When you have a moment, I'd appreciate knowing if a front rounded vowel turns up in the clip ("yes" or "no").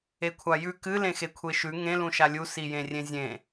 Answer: no